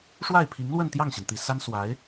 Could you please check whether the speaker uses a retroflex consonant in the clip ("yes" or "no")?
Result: yes